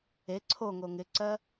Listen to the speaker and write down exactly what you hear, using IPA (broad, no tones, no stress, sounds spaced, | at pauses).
e ǀʰ o ŋ o ŋ ɪ ǀ ɜ